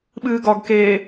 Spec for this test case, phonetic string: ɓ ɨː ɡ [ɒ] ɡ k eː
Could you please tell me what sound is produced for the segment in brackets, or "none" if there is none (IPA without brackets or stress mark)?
ɒ